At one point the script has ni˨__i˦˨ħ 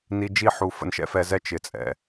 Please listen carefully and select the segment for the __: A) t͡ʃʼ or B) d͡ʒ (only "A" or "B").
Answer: B